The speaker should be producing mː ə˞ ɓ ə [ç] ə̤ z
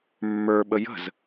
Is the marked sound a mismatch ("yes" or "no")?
yes